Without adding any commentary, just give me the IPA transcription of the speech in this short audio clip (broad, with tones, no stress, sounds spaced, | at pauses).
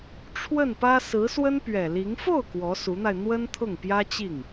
ʈ͡ʂʰ w ə˥˩ n p ä˥ s ɹ̩˧˥ s w ə˥ n p ɥ ɛ˨˩ l i˧˥ ŋ f o˥˩ ʊ̯ k w ɔ˧˥ s u˧˥ n̪ a˧ ɪ̯ n̪ w ə˥ n t̪ʰ ʊ˥˩ ŋ p j ä˥ t͡ɕ i˥˩ ŋ